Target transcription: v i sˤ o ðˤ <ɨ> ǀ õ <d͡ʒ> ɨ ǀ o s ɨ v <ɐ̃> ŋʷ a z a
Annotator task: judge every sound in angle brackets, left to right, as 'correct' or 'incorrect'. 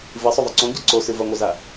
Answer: correct, incorrect, incorrect

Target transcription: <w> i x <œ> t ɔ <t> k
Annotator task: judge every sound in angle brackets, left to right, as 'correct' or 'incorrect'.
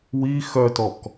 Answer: correct, correct, incorrect

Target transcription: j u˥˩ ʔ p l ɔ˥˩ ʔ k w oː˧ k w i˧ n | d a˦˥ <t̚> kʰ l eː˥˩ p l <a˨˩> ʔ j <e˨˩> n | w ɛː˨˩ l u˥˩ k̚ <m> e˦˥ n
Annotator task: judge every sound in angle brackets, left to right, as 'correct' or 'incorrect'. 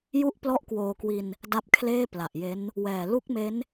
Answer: incorrect, correct, incorrect, correct

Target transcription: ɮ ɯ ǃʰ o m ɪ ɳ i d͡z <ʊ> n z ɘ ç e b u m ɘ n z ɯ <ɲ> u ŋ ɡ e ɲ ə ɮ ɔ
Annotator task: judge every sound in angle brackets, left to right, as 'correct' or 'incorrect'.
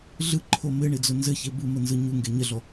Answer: correct, correct

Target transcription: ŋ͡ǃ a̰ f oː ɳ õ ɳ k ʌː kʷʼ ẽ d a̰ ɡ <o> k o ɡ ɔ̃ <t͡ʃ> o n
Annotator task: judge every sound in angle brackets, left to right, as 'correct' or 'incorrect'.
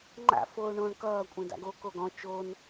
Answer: correct, correct

